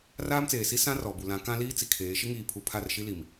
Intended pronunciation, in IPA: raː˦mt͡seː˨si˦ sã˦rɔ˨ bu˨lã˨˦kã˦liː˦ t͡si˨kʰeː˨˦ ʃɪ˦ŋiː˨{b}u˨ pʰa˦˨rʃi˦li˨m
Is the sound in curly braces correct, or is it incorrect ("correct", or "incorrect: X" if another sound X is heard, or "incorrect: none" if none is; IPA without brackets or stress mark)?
incorrect: pʰ